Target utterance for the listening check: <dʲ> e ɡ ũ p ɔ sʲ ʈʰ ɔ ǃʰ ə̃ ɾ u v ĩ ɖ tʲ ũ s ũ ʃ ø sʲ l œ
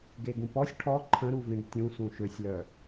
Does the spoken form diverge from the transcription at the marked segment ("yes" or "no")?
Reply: yes